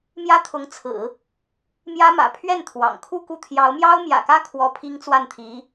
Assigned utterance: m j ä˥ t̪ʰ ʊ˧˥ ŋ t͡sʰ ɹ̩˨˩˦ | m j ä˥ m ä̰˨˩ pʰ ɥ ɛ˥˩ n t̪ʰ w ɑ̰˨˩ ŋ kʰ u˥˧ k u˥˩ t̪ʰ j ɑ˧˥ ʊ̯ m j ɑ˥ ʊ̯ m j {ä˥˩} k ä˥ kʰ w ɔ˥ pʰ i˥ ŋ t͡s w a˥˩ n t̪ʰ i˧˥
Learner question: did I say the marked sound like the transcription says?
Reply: no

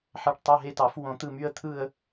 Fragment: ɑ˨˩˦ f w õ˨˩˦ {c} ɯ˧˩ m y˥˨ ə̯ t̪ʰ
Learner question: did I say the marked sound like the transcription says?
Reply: no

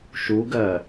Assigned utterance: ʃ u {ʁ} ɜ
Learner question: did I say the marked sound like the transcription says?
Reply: no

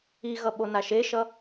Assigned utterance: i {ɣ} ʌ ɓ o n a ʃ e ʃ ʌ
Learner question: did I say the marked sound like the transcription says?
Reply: yes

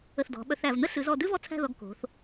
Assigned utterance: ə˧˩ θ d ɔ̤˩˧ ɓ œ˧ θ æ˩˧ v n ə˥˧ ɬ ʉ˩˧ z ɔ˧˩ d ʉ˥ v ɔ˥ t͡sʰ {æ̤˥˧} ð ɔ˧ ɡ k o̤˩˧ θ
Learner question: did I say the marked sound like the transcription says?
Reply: yes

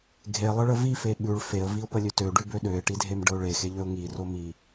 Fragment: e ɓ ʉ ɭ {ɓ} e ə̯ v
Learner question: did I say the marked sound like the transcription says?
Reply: no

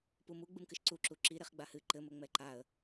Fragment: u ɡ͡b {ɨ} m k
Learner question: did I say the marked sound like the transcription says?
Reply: yes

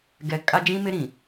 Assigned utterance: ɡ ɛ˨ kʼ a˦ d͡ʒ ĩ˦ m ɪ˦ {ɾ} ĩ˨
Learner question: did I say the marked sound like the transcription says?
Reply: yes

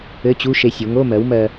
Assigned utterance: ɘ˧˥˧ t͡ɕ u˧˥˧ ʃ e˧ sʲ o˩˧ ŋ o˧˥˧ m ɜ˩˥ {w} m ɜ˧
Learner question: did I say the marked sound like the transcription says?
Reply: yes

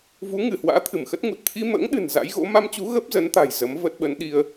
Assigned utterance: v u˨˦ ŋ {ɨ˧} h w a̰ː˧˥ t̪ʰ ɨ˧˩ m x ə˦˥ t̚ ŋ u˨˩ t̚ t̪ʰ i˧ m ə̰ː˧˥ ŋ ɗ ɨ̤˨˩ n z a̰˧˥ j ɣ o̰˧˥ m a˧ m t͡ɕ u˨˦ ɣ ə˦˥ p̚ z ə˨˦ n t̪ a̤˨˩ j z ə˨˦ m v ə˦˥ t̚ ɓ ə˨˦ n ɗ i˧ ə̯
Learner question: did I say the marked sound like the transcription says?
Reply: no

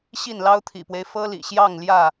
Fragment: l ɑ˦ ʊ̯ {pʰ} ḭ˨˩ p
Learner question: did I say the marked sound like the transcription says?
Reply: no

